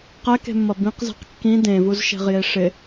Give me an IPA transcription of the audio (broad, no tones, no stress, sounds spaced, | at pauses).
q ɛ k e̤ mː ʌ b ĩ q z ɛ̤ q kː ĩ d ẽ v u z ʃ e̤ ʁ j e ʂ ɪ